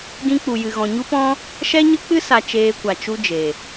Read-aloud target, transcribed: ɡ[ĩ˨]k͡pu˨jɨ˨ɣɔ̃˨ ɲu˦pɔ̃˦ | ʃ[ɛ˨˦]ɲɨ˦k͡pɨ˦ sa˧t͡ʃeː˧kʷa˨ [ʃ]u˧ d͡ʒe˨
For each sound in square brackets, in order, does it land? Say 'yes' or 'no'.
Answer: no, no, no

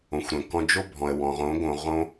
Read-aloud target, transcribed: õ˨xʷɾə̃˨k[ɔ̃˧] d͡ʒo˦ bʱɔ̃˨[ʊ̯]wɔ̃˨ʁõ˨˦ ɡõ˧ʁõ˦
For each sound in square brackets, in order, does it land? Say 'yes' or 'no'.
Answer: yes, no

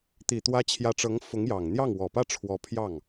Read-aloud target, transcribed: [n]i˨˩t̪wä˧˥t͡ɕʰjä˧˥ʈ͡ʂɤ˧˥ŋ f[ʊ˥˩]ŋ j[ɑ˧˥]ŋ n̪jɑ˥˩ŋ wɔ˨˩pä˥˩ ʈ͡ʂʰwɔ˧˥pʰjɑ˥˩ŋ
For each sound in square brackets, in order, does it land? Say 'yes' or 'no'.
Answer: no, no, no

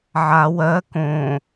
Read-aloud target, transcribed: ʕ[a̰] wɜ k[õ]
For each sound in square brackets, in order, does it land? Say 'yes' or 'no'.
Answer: no, yes

